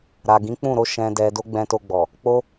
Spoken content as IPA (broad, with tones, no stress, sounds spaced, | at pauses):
ɾ a˨ ɡ ĩ˨˦ k͡p ũ˦˨ ɾ o˨˦ ʃ ɛ̃˧ d ɛ˧ d o˦ ɡ͡b ɛ̃˧ t o˧ ɡ͡b ɔ˨ | k͡p o˦